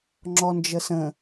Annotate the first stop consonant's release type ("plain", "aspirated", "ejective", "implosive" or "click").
click